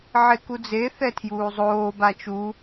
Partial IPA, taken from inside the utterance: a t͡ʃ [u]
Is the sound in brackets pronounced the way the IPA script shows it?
yes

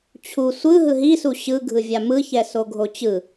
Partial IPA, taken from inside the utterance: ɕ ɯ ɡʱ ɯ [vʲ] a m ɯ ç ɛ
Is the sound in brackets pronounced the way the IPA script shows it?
yes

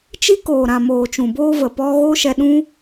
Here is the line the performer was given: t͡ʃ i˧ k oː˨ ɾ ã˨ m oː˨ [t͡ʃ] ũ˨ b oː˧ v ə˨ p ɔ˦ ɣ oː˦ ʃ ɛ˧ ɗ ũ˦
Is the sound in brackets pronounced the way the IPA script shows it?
yes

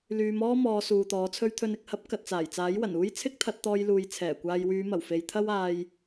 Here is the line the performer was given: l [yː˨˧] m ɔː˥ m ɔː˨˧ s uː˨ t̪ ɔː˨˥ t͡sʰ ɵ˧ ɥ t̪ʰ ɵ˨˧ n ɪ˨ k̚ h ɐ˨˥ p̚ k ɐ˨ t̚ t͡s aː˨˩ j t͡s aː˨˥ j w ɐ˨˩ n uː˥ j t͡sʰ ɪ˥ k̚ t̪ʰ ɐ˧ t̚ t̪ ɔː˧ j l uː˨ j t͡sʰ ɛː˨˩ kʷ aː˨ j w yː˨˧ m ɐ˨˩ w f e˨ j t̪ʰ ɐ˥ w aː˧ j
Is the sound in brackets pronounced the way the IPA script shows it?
yes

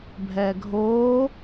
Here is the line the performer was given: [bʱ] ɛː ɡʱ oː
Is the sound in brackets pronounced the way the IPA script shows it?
yes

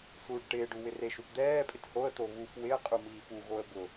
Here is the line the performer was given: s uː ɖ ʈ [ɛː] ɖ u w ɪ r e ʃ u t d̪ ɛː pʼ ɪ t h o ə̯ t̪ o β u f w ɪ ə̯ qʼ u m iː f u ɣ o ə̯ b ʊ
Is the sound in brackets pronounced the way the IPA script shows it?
no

